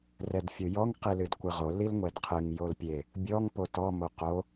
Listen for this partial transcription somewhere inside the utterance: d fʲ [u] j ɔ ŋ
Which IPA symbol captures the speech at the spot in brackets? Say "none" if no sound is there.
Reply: o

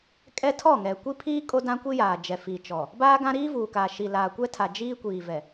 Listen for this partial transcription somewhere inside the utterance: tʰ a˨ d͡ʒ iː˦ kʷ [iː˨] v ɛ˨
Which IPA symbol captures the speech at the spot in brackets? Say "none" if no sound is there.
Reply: iː˨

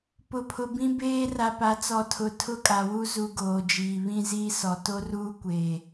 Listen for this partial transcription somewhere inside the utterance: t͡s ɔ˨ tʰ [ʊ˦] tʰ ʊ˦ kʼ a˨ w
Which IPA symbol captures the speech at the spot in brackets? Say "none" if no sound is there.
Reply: ʊ˨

